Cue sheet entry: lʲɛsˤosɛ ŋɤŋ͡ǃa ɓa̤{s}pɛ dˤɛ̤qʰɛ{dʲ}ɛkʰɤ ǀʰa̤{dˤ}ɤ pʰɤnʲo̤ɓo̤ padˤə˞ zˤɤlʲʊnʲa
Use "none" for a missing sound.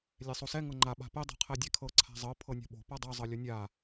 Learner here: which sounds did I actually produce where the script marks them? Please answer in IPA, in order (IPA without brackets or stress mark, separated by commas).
none, dʲ, zˤ